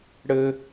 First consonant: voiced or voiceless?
voiced